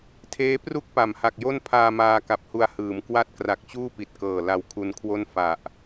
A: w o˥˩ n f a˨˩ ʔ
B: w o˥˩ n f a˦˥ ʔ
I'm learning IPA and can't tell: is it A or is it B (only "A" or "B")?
A